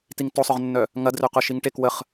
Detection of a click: absent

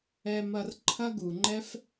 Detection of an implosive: absent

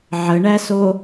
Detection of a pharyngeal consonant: present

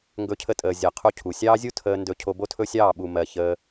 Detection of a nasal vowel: absent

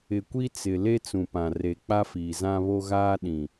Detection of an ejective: absent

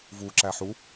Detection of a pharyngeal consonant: present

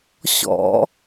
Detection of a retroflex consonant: absent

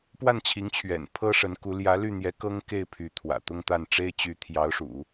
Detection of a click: absent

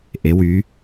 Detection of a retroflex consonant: absent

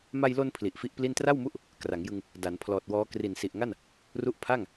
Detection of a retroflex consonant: absent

